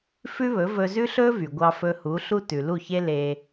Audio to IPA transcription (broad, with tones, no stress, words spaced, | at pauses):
fʉ˥βɵ˩˥vɵ˧ zʉ˥ɬɵ˥vy˩ ɡʷɑ˧fɵ˧ hu˩˥ ɬu˥tʉ˩ lu˥˩çe˥ le˧